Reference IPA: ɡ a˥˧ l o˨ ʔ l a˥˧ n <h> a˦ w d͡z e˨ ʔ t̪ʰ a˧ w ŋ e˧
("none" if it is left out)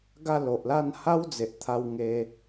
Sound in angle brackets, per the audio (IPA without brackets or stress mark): h